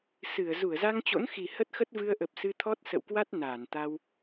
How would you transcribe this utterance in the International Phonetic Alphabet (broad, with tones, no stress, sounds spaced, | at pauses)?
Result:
s ɨ˧˩ ə̯ z u˧˩ ə̯ z a˧ ŋ t͡ɕ o̰˧˥ n x i˨˩ h ə˦˥ t̚ x ə˦˥ t̚ v ɨ˧ ə̯ ʔ ə˨˩ p̚ s ɨ˧ t̪ʰ ɔ˦˥ t̚ s ə̰˧˨ w k w a˦˥ t̚ n aː˧˩ n t̪ a˧ w